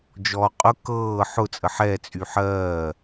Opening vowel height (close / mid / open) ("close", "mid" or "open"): mid